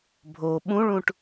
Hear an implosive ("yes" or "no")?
yes